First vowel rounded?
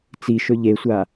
no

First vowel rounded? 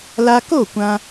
no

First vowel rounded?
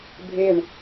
no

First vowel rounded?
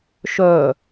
yes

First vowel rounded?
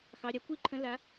no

